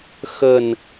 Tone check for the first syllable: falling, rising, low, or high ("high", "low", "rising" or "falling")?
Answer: low